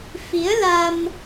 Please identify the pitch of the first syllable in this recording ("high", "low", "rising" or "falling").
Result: rising